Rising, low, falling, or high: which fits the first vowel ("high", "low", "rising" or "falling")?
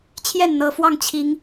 falling